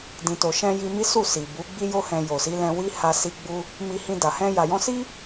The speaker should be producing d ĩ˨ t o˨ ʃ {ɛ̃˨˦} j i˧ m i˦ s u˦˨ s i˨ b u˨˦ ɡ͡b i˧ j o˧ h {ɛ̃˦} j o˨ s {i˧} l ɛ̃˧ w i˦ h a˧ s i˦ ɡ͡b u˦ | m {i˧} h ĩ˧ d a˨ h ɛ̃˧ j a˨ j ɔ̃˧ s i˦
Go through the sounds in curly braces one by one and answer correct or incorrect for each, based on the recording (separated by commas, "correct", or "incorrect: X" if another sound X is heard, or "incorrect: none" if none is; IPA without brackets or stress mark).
incorrect: ɛ̃˧, incorrect: ɛ̃˨, incorrect: i˨˦, correct